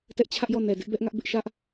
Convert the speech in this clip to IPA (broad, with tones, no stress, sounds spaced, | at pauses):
t ɛ˦ ʔ t͡ɕʰ ä˦ ʔ j ɔ˦˨ n ɛ˨ d ɪ˦ ʔ b ɛ˦ ʔ ŋ ä˦ ʔ b ɪ˦ ʔ ʃ ä˦ ʔ